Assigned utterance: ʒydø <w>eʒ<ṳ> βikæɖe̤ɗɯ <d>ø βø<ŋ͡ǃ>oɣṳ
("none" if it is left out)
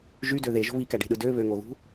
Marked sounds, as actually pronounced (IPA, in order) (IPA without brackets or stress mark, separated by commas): ð, o̤, d, ŋ